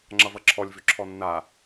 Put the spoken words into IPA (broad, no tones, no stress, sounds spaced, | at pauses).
ŋ͡ǁ ʌ v ʌ ǁʰ ɔ lʲ v ʏ ǁʰ ɔ nː a